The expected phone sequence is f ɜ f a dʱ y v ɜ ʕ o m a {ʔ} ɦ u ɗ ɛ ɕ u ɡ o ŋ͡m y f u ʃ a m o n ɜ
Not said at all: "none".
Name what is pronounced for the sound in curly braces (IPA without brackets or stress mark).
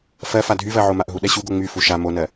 ʔ